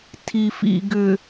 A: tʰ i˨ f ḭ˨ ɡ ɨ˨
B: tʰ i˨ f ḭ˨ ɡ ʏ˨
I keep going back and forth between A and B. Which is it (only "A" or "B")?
B